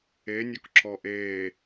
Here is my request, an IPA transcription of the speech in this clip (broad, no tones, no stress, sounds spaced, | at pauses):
e nʲ ɔ k ǁ ɔ ʔ eː